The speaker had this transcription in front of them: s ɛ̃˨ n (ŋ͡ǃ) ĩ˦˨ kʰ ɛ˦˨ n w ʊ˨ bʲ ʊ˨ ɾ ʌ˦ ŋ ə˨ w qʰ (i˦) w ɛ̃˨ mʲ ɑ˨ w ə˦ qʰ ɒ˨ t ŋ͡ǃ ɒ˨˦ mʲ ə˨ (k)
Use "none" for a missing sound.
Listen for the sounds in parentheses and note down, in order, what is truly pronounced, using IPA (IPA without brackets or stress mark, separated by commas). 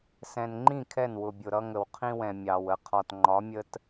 ŋ͡ǃ, ĩ˦, t